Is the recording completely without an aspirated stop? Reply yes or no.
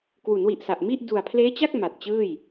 no